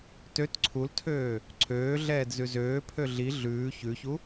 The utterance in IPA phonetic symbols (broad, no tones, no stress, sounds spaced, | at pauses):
t ø t ǀʰ u l tʰ øː | ǀʰ øː ɮ ɛː d z ʉ z øː pʰ ø ɮ i ɮ ʉː ç ʉ ç u